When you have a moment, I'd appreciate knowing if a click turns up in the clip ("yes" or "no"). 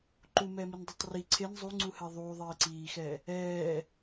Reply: yes